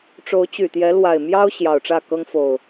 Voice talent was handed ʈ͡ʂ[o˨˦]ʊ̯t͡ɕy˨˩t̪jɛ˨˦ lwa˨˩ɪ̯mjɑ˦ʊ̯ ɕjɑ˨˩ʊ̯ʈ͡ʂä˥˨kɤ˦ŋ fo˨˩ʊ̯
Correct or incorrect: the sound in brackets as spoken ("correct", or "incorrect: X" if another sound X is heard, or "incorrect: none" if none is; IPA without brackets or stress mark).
correct